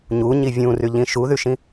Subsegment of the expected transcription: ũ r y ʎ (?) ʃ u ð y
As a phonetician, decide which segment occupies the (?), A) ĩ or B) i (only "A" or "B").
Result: A